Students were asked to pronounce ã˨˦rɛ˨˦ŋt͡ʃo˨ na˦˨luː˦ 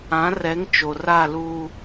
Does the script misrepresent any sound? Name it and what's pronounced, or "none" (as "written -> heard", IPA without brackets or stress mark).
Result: n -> r